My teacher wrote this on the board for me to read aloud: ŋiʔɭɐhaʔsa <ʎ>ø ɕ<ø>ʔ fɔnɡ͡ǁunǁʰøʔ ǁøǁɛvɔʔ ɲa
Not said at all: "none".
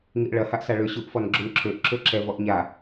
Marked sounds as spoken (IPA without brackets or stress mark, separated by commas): ɭ, u